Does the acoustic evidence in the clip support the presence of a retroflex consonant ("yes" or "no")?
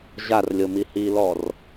no